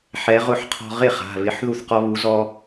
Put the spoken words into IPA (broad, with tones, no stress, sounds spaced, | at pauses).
ħ ɛ˨˥ ʁ ʊ˥˩ ħ qʰ ɔ̤˦ ʁ ɪ˥˩ χ a̤˩˧˩ β ɪ˨˥ ħ ð u˥˩ θ q ɔ˦ β u˨˥ z ɔ˦